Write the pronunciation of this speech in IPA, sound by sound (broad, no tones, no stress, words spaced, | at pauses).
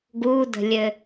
ɡudə̤lʲɘ